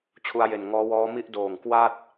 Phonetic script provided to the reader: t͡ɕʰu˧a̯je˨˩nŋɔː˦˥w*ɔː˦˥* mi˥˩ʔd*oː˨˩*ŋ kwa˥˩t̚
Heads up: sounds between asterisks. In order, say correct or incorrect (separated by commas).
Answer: correct, correct